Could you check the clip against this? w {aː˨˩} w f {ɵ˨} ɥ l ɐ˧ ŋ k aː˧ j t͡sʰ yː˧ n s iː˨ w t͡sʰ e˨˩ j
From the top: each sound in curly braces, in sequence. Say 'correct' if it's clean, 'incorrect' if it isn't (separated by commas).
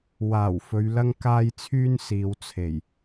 correct, correct